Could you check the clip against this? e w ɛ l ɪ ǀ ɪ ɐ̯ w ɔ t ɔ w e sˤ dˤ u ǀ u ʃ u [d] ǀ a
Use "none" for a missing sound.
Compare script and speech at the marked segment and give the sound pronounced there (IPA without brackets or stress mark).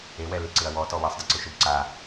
b